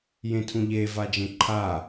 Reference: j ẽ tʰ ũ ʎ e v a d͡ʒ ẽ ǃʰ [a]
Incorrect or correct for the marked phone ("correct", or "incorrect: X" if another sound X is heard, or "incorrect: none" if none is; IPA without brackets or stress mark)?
correct